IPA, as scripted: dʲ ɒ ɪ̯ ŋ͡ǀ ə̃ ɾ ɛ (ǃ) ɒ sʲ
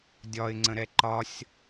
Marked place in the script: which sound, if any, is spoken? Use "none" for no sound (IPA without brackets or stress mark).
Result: ǃ